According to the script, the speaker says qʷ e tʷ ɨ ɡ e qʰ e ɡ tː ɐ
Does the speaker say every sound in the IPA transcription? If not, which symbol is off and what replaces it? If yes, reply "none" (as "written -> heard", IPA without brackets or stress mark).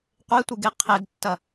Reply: none